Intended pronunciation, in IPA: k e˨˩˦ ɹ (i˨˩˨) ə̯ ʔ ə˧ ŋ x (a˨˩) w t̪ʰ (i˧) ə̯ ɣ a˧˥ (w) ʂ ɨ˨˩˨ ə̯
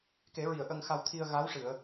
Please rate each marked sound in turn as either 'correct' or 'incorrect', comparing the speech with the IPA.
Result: correct, incorrect, correct, correct

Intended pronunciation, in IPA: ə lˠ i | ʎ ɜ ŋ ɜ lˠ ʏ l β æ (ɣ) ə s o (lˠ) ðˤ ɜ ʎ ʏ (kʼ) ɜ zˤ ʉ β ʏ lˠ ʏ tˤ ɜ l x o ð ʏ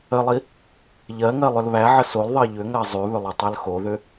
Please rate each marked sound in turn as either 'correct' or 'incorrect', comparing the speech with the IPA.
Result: incorrect, incorrect, incorrect

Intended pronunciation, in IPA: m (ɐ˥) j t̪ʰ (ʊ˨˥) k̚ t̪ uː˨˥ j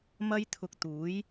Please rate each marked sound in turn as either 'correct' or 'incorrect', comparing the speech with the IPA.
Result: correct, incorrect

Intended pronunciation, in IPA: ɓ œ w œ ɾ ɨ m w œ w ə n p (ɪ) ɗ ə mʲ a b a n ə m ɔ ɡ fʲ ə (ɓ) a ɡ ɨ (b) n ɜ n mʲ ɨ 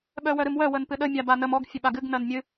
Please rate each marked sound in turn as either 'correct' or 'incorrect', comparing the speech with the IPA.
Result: incorrect, correct, incorrect

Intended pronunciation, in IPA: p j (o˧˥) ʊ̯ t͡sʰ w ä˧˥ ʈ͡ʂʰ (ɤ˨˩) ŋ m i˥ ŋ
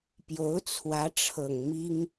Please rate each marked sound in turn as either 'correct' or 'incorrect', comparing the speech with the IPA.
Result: correct, correct

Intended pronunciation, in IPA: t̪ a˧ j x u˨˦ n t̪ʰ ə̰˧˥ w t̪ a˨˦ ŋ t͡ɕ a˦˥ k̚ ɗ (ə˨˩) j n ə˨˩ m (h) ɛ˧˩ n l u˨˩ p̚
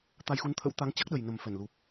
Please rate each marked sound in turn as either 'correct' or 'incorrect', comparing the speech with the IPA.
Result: correct, incorrect

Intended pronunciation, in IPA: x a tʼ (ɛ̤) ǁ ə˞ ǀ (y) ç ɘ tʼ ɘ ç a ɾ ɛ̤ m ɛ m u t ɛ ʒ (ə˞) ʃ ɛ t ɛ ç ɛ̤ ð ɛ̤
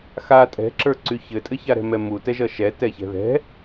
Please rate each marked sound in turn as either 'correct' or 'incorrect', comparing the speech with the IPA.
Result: correct, correct, incorrect

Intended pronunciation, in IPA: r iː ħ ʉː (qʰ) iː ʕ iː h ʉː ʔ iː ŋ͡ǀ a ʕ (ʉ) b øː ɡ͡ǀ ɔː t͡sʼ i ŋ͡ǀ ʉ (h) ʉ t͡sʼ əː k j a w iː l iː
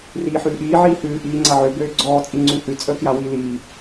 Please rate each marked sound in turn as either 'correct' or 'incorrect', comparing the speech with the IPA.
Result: incorrect, incorrect, correct

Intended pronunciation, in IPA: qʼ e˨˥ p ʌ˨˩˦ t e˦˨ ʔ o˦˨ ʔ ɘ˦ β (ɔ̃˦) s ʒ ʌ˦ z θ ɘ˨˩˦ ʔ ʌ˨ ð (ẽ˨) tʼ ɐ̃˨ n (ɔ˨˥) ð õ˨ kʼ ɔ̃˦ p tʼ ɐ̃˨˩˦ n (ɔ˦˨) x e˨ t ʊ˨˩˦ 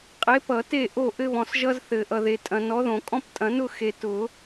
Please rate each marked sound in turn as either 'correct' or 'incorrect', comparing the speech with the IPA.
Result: incorrect, incorrect, correct, incorrect

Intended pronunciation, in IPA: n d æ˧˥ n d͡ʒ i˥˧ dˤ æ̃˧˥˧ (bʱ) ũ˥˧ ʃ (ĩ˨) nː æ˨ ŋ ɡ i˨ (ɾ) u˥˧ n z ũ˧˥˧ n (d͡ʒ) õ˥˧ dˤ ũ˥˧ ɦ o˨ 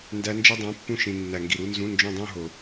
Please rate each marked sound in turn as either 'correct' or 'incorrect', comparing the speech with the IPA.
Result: incorrect, correct, correct, correct

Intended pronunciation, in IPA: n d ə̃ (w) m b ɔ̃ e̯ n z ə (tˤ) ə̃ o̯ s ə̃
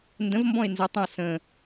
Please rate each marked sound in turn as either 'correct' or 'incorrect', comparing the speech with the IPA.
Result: incorrect, correct

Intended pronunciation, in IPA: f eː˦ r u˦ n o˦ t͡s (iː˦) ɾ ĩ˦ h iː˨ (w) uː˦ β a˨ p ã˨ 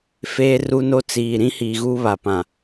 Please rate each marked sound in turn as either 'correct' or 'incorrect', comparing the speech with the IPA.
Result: incorrect, incorrect

